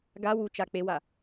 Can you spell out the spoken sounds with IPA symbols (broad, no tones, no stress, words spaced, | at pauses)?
ɡa wu t͡ʃak͡pewa